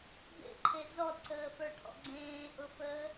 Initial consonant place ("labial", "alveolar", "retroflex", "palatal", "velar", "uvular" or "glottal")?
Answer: labial